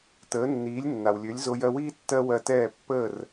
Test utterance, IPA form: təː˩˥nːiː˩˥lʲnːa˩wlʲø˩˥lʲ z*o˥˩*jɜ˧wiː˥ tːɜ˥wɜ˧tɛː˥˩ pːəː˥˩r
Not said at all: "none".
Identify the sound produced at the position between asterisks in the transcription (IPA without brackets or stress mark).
o˧